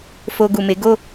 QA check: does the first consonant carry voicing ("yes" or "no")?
no